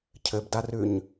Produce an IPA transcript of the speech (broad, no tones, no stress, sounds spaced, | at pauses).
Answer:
cʰ ɘ b d a r ʉː ɲ